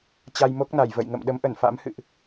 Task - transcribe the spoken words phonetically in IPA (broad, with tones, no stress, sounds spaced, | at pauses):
t͡ɕ a˧ j m o˦˥ k̚ n a˧˩ j v ə̰˧˨ j ŋ ə̰˧˨ m ɗ ə˨˦ m ʔ ə˧˩ n f a̰˧˥ m h ɨ̰˧˨ ʔ